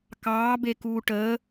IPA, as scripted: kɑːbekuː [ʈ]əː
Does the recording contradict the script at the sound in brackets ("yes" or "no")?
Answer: no